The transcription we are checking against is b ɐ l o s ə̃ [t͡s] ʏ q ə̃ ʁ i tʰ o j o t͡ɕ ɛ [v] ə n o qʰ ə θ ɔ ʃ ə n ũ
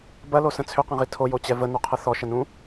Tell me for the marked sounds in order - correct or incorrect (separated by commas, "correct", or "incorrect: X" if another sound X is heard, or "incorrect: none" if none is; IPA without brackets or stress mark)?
incorrect: t͡sʰ, correct